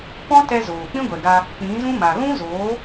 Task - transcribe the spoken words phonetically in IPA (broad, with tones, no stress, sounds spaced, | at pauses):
p ɔ̃˦ t ɛ˧ z oː˨ k͡p ĩ˦ ɡʷ ɛ˨ ɡ a˧ | k͡p ĩ˨˦ z ũ˦ m a˨ ɣ ũ˦ z oː˨˦